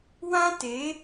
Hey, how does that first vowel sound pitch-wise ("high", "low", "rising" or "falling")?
high